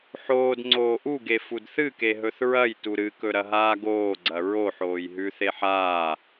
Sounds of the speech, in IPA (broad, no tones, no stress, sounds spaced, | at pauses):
ħ oː d ŋ͡ǀ oː ʔ u ɡ e f u d θ ɨ k e ɦ ɵ θ ɹ ɐ j t u ɾ ɨ k ɵ ɾ ɐ ɦ aː ɡ oː ɡ͡ǀ ɐ ɹ o ħ oː j ɦ ʉ θ e ħ aː